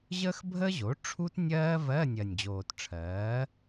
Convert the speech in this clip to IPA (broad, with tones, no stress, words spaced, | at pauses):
ʑəː˥xbʱəː˥ʑo˩˥ ʈ͡ʂʰu˥tnʲɜː˥ vɜ˧˥˧nʲɜ˨˩nʲd͡ʑoː˨˩tʈ͡ʂʰɜː˩˥